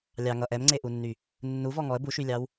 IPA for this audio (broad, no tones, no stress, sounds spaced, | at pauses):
lʲ ɑ ŋ ʌ ʔ ɛ m ŋ͡ǀ e ʔ u nː y | nː u v ɔ ŋ ɔ ə̯ b u ʃ y lʲ ɑ w